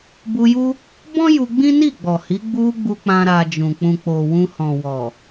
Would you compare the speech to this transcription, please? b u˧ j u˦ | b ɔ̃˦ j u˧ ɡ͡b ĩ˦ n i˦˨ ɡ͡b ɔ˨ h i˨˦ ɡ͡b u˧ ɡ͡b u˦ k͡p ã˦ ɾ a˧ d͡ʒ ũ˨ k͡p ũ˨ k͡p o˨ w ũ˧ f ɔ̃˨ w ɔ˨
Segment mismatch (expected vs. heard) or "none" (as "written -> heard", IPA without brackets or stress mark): f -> h